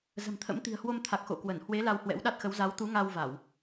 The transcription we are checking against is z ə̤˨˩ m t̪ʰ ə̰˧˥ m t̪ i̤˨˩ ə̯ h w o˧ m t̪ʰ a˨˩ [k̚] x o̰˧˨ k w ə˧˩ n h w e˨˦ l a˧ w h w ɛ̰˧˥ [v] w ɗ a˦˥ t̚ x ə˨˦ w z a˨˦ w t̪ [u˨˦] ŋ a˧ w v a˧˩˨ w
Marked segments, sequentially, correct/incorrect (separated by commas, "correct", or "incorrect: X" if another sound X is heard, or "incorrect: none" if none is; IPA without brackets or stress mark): correct, incorrect: none, correct